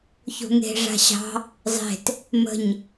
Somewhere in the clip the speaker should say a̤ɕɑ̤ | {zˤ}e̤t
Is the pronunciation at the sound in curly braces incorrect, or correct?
correct